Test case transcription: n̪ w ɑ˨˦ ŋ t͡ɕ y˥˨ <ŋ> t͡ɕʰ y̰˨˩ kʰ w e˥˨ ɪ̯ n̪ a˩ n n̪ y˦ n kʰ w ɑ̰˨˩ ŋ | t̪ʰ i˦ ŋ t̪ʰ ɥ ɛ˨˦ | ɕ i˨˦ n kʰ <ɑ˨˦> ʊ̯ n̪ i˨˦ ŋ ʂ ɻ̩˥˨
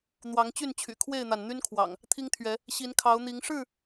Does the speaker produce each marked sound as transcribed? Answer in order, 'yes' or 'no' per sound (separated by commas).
no, yes